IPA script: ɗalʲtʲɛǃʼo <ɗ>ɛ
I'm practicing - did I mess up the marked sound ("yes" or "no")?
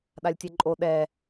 no